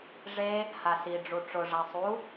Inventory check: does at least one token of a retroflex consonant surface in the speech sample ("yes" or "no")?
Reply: yes